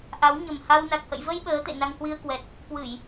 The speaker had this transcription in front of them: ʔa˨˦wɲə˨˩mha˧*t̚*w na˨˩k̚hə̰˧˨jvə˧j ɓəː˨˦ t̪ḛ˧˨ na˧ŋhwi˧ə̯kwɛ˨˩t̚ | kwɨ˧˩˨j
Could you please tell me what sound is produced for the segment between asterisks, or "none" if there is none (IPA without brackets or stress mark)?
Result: none